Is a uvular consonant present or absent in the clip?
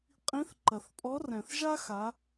present